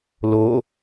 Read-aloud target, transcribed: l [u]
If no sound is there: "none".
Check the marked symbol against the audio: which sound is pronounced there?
o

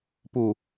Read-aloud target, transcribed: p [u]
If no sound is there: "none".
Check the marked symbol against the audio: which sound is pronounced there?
u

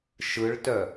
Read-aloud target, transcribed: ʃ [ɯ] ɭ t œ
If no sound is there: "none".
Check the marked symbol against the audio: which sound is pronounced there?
ɯ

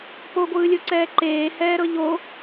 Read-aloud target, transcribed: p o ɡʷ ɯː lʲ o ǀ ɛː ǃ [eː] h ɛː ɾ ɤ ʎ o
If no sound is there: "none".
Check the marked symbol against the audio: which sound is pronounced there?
eː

